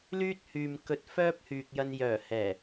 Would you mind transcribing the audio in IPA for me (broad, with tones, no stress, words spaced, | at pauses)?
lyː˥t̚hyː˨m kɵ˧t̚ fœː˥p̚hyː˨k̚jɐ˧njœː˨˩ hɛː˨˩